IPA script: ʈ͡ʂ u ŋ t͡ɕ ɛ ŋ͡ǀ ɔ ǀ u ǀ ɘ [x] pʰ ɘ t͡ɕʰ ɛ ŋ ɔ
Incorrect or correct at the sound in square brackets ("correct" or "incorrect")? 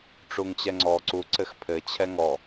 correct